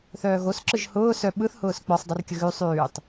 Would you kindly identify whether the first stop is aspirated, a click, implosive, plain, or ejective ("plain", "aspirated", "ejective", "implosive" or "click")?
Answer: click